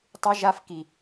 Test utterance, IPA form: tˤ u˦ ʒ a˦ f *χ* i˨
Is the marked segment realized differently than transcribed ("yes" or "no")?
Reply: yes